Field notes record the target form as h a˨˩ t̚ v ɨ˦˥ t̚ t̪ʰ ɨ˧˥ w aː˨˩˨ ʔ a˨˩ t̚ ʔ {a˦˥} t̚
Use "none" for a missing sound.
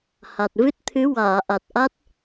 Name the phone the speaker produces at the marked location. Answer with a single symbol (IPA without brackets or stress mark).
a˦˥